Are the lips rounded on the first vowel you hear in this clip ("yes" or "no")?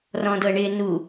yes